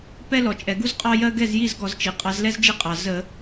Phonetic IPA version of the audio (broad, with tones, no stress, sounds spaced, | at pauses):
p ɛ˥ l ɔ˩ t͡ʃʼ ɛ˩ ɡ u˥ z qʼ ɑ˥ j ɜ˥ ɡ ɛ˥˩ z j i˥˩ z ɡ ɔ˧˩˧ z t͡ʃ i˩ qʼ ɑ˨˦ z l ɛ˥ z d͡ʒ i˥˩ qʼ ɑ˩ z ə˧˩˧